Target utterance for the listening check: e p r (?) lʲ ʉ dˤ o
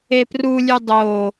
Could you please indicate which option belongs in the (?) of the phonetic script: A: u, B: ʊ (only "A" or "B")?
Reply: A